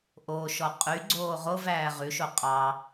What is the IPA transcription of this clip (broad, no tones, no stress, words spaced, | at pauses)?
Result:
ʔoʃɔ qʼyɡ͡ǀoː ʁovæː ʁʉʃo qʼɑ